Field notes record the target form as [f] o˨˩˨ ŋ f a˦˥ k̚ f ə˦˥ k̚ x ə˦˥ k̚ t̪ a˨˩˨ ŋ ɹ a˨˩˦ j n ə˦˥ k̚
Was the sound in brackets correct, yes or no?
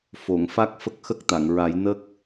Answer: yes